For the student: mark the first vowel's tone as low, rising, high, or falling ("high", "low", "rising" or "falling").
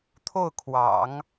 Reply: falling